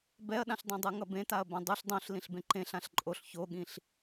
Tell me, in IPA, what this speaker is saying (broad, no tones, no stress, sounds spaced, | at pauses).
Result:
b ɛ ɐ̯ ɗ ã ɬ dˤ ẽ dˤ ɯ ŋ ʌ b ẽ t a ɐ̯ b ã dˤ u ɬ dˤ õ ɬ l ĩ ɬ b ẽ ǃ ẽ ɬ ã ɬ ǃʼ o ɬ ç o ɠ ĩ ɬ